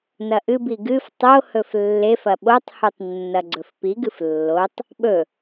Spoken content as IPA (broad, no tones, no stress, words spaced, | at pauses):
nɐʔɨbi ɡɨf tˤohɵf lːefɐ ɓotˤhutˤ nːɐɡ͡ǀɵfpiɡɨf lːotˤ | ɓɵ